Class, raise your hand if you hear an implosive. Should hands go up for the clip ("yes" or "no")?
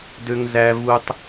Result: no